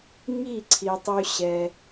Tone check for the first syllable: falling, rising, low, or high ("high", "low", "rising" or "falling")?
falling